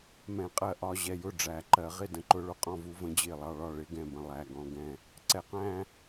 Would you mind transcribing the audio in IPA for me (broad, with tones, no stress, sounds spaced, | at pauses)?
m ɛ̃˨˩˦ qʼ ɜ˨˩˦ ʔ ɒ˧˥˧ ʑ ɛ˧˩ j ʊ˥˩ ɖ͡ʐ æ˨˩˦ ǃ ɜ˨˩˦ ʁ ɪ˥˧ d ə̃˧˥ ǃ ʊ˧˥ ɭ ʊ˧˩ qʼ ɔ̃˥˧ v u˧˥ v ə̃˧˥ d͡ʑ ɪː˥˩ lˠ ɑ˥˧ ɭ ɒ˥˩ ɭ ɪ˧˥˧ ɡ ɛ̃˥˩ b ə̃˧˩ lˠ æ˧˥˧ ɡ ɔ̃˧˥˧ ɡ ɛ̃˥˧ | ǀ ɛ˨˩˦ q æ̃˥˧